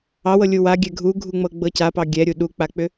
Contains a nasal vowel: no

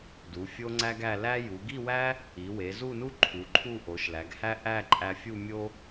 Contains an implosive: no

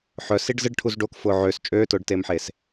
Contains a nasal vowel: no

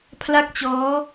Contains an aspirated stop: yes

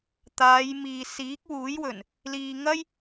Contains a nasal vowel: no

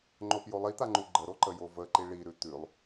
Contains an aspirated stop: no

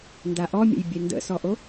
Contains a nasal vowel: no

